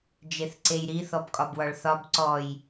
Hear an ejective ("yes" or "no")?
yes